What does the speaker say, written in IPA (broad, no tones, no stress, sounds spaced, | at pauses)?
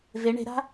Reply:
v e ɳ e̤ ɾ a̤